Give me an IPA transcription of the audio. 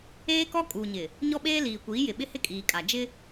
eː˦ k ɔ˦ kʼ uː˨ ɲ ɪ˨ | ɲ ɔ˦ ɓ eː˦ l iː˨ kʷ iː˨˦ j ɪ˨ ɓ ɪ˦ h ɪ˦ kʼ iː˨ kʼ a˨ d͡ʒ ɪ˦

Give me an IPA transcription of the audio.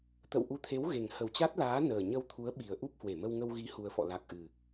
t̪ ə̰˧˨ w ʔ u˨˦ t̪ʰ e˨˦ w ɣ e˨˩ ŋ h ə˨˩ w t͡ɕ a˦˥ t̚ l aː˨˦ n əː˨˩ ɲ ə˧ w t̪ʰ u˨˦ ə̯ ɓ i˨˩ ə̯ ʔ u˦˥ p̚ h w e˧˩ m ə˧ w ŋ ə˧ w ɣ i˨˦ h u˧ ə̯ f ɔ̰˧˨ l a˨˩ k̚ ʔ ɨ˨˩

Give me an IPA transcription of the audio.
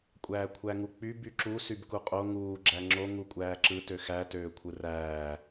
kʷʼ æː kʷʰ æ ŋ u k͡p y b y ǁ u s y b k u qʼ o ŋ uː ɡ͡ǁ æ ŋ͡ǁ o ŋ u kʷʼ æː ǁ ɯ t ø x æ t øː kʷʰ ɯ r æː

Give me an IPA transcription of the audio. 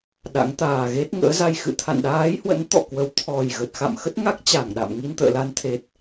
ɗ a̰˧˥ ŋ t̪ aː˨˩ ɣ e˦˥ t̚ ŋ ə̰ː˧˥ z a˧ j x ɨ̰˧˨ t̪ʰ a̰˧˨ n ɗ aː˨˦ j h w ə̰˧˥ n t̪ ɔ̰˧˨ k w ə˨˦ w t̪ʰ ɔ˨˩ j ɣ ə˨˩ t̚ x a̰˧˨ m x ə˦˥ t̚ ŋ a˦˥ k̚ t͡ɕ a˧˩ ŋ ɗ a̰˧˨ m ŋ i˧ n t̪ ə̰ː˧˨ l a˧ n t̪ʰ e˨˩ t̚

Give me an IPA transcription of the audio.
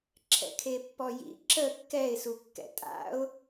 ǁʰ ɛ̰ kʰ e pː ɔ j ḭ ǁ ə kː ɛ ɪ̯ s u kː ɛ̰ tʼ a̰ ʊ̯

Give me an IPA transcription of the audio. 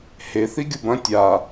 h e θ i ɡʲ u b ɐ̃ tʲ a

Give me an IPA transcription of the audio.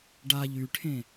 ɖ a ʎ y ʈʰ ẽ

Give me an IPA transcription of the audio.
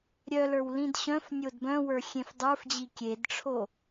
ɾʲ œ l ə˞ w l ĩ d ɕ œ̃ f nʲ o d b œ̃ w ə˞ xʲ ẽ f dˤ ə˞ f d͡ʑ i kʲ e d ʈ͡ʂʰ o

